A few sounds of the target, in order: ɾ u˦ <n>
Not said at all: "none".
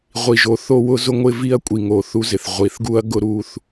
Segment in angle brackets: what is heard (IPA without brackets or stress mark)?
θ